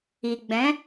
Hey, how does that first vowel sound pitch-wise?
low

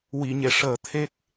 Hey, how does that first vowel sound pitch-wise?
low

